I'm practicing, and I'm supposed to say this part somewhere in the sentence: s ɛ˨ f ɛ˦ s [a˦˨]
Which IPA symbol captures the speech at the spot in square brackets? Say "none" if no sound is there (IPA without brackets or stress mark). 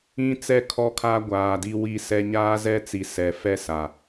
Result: a˨